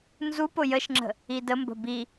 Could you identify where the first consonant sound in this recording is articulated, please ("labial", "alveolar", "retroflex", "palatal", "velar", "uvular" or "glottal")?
alveolar